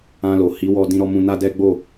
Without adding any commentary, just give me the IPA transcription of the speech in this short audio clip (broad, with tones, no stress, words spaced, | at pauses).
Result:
ã˧lo˨ hi˨˦wɔ˧ dĩ˧ɾɔ˧mũ˧ na˦dɛ˦ɡ͡bo˦˨